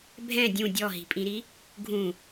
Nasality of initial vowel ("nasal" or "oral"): nasal